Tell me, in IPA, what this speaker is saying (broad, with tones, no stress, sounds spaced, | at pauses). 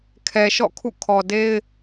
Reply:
kʰ ɛ˨ ʃ ɔ̰˦˨ kʰ ṵ˦˨ kʰ ɔ˨ d e˦ ɪ̯